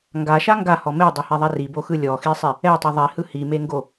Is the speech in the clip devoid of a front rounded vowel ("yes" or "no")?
yes